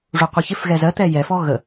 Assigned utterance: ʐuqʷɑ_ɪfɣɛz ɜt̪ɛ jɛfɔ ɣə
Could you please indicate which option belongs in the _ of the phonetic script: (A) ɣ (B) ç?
B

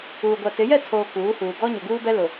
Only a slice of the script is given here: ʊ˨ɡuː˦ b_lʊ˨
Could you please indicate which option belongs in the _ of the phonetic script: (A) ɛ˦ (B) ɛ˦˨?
A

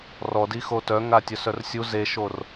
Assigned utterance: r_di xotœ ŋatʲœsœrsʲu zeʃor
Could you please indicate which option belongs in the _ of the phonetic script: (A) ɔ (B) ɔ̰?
A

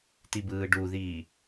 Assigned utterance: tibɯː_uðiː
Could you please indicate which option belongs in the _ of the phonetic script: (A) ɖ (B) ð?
A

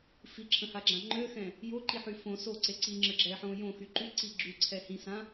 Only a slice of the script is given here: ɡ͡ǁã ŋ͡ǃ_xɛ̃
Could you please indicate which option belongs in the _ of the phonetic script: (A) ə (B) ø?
B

